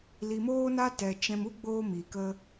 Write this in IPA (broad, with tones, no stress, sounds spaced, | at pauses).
l i˨ m oː˦ n a˦ t ɛ˨ t͡ʃ ɛ̃˧ m u˦ ɡ͡b oː˧ m iː˨ k ə˦